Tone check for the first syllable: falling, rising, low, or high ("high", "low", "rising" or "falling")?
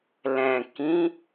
low